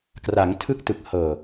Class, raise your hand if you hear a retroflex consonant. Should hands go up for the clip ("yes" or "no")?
no